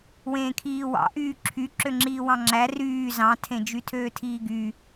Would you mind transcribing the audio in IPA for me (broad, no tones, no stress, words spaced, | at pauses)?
wẽːkʰiːwɑ̰ ʔyːǁʰy ǁøŋ͡ǁiːwɑ̃ŋ͡ǁæ ryː zɑ̃tʰẽ d͡ʒytʰøːtʰiːɡy